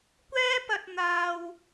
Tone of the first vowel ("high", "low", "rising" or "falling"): high